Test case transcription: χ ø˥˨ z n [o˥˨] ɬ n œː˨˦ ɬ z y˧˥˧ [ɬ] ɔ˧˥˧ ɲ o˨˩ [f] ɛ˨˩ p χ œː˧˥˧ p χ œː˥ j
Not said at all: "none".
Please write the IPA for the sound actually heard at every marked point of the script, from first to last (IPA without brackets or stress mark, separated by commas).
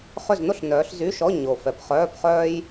o˥, ʃ, f